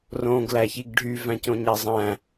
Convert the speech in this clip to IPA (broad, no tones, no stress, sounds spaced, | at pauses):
r õ ɡ l æ ç i ɡ ɖʱ y v æ̃ c õ ɲ æ zˤ æ̃